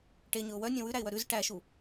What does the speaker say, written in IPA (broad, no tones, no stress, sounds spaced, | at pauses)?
ʈ e ɲ ɵ ʊ̯ w œ nʲ œ̃ w ʉ ɾ æ ɪ̯ w œ ɾ ʉ z ʈ æ ʃ u